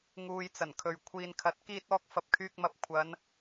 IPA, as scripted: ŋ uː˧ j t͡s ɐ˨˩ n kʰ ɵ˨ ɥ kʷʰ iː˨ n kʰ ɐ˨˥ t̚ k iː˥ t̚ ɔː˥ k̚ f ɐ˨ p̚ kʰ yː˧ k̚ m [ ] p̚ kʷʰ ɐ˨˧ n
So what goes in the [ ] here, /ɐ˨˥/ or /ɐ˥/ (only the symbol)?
ɐ˨˥